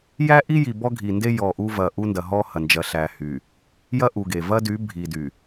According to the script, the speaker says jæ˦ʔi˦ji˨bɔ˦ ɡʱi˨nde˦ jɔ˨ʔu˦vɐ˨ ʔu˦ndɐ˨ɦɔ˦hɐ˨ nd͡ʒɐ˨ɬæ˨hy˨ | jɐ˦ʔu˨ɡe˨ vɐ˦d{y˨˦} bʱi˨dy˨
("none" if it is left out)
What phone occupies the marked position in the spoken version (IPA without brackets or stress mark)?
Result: y˨˦